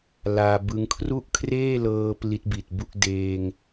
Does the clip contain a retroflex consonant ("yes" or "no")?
no